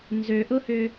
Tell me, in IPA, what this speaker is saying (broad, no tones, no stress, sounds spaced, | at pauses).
n z ø ʔ ʊ h ʏ